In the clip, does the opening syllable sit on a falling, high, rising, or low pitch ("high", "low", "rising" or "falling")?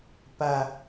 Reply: high